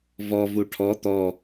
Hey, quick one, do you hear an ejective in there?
no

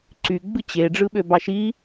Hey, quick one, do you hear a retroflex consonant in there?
yes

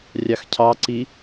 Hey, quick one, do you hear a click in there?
yes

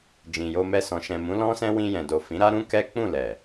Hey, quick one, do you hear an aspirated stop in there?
no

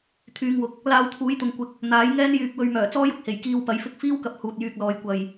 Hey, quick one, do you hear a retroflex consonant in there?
no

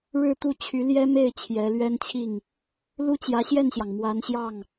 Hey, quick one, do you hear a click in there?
no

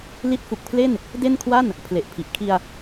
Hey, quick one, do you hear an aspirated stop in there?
yes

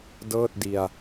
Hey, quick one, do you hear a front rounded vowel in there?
no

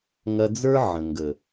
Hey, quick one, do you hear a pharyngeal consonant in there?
yes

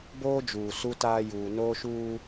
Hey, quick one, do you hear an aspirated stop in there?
no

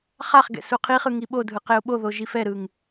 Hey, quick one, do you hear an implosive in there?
yes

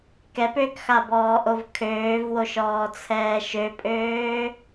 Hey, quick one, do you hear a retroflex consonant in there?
no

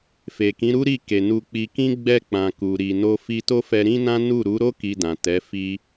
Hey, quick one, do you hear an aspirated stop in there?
no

